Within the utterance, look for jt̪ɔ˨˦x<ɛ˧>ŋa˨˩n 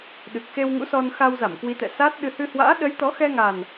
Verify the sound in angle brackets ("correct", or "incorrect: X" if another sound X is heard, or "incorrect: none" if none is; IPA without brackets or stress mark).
correct